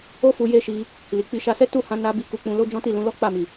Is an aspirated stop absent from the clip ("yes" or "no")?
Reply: yes